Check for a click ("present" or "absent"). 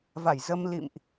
absent